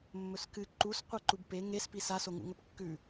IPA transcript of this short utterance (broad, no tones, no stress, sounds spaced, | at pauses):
mː ɵ s k ɨ ǃ u s qʷ a ǃ u b p e ŋ e s p i s a s o ŋ ṵ ŋ ɵ p kː ʉ